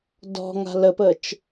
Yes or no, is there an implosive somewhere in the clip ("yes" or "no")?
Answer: no